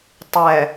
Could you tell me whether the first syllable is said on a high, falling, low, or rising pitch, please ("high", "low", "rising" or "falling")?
low